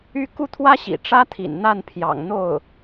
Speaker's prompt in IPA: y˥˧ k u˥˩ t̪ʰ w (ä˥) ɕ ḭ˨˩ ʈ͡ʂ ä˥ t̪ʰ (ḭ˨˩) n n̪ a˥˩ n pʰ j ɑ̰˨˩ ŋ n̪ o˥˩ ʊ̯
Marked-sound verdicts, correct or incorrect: correct, correct

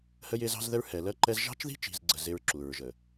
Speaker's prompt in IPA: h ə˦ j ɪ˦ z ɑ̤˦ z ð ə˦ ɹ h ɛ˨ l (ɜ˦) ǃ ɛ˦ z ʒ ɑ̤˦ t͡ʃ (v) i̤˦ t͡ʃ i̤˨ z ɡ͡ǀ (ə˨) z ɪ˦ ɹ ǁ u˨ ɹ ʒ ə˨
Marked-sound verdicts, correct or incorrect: correct, incorrect: ð, correct

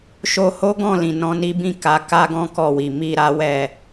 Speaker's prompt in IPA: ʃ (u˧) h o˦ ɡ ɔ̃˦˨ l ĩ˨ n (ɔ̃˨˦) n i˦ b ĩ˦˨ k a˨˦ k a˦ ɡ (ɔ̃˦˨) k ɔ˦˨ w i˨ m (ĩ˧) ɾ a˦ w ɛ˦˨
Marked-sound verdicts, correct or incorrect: incorrect: o˧, incorrect: ɔ̃˧, incorrect: ɔ̃˦, incorrect: i˧

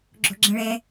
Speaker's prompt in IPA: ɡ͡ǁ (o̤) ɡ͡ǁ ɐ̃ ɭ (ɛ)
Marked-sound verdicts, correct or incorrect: correct, correct

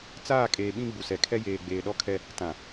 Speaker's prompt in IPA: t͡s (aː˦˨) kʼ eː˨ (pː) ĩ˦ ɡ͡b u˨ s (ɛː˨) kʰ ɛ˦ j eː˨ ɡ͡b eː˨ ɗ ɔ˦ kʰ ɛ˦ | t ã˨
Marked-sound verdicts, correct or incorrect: correct, incorrect: ɓ, incorrect: ɛ˨

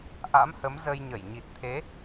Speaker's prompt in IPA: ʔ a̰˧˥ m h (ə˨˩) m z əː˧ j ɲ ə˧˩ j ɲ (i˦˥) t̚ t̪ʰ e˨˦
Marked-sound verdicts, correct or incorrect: incorrect: ə˨˦, incorrect: i˨˩

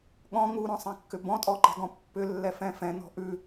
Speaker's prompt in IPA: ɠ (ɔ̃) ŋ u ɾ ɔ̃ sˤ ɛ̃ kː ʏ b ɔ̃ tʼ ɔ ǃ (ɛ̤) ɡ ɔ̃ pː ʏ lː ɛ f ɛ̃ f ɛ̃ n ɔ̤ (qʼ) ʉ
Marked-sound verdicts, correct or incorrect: correct, correct, incorrect: ʔ

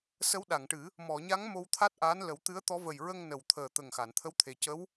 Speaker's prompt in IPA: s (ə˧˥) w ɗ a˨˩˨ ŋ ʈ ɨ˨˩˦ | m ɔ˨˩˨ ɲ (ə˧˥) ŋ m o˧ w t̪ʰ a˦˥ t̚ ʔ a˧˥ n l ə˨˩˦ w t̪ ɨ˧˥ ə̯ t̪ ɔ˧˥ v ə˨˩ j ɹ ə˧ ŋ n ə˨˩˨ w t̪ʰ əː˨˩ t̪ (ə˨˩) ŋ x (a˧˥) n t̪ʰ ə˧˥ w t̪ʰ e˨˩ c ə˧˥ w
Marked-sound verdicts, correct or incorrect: correct, incorrect: a˧˥, correct, incorrect: a˨˩˨

